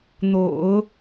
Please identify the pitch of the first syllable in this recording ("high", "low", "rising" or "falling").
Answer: low